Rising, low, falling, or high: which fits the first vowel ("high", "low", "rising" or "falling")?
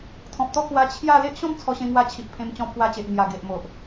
low